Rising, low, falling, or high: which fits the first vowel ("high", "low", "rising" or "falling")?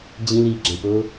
high